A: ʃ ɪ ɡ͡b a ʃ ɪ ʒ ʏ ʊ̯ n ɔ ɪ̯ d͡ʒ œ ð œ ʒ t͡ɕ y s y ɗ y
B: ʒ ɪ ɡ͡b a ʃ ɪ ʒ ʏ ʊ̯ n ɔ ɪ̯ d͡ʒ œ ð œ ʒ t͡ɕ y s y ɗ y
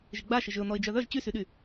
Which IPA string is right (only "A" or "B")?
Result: B